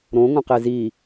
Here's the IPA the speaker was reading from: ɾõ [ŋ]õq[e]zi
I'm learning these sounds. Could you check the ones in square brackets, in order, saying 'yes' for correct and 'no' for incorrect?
yes, yes

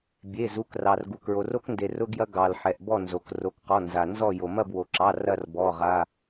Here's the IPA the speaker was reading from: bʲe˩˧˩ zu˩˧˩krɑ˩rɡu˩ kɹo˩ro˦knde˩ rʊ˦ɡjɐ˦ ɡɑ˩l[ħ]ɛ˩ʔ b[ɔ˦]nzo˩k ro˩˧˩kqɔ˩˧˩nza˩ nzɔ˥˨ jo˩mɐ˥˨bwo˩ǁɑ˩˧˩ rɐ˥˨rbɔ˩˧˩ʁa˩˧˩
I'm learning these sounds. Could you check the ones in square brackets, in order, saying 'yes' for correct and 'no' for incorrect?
yes, no

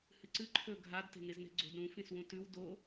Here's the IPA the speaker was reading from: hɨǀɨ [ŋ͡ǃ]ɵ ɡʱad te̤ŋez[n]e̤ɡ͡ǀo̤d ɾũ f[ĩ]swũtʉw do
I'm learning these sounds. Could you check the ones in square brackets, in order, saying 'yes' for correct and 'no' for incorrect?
no, yes, yes

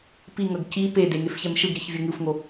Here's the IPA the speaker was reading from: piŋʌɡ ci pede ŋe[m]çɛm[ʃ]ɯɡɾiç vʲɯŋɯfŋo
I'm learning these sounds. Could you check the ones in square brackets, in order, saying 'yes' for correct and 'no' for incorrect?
no, yes

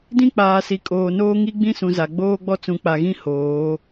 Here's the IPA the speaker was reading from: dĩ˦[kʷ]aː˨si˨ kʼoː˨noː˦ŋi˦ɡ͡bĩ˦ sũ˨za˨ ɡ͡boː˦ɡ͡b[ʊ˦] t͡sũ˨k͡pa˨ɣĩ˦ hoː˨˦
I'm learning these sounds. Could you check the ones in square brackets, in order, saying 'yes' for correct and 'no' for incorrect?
no, no

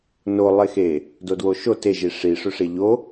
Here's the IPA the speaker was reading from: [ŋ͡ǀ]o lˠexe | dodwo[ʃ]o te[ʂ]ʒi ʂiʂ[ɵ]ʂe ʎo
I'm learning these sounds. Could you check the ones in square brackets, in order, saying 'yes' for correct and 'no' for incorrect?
no, yes, no, yes

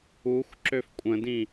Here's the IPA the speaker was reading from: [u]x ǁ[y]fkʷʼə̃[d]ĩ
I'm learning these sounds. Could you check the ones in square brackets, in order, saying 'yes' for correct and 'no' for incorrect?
yes, no, yes

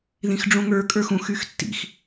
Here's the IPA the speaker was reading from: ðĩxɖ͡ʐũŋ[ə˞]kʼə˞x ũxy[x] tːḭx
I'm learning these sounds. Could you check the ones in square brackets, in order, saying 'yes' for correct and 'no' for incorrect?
yes, yes

